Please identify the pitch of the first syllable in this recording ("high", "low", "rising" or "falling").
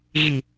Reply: low